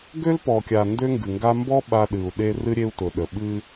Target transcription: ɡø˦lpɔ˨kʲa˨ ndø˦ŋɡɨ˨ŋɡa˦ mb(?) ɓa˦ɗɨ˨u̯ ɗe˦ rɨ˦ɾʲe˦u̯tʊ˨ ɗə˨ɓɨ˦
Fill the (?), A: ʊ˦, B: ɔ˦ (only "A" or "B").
B